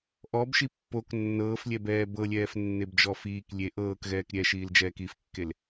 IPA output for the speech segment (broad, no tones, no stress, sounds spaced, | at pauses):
ʔ ɔ b ʃ i pː o k nː ɤː f lʲ ɛ b ɛː b ɤ lʲ ɛː f nː e b d͡ʒ ɔ f iː k lʲ e ʔ ɤː k ɣ ɛː k ɾʲ ɛ ʃ iː l d͡ʒ ɛː k i f kː e l